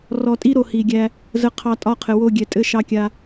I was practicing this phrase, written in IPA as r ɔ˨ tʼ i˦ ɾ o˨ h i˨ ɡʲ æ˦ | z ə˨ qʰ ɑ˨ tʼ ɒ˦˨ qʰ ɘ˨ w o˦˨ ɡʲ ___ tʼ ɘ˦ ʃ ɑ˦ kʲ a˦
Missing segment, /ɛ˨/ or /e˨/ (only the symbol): ɛ˨